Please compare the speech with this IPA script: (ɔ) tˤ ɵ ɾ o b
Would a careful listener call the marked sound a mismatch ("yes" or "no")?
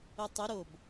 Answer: yes